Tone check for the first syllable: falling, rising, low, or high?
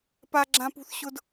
high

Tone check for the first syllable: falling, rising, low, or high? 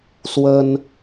high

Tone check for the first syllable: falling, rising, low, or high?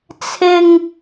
high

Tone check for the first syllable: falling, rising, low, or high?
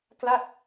falling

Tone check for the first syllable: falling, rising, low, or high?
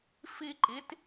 high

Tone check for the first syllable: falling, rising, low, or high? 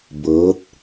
rising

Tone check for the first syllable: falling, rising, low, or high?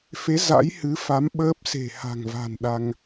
rising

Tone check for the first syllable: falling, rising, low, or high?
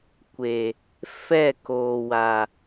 low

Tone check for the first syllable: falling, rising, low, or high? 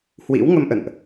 rising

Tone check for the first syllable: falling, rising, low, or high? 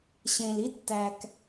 low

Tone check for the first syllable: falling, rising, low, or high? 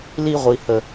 high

